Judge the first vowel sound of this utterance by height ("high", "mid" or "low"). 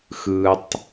high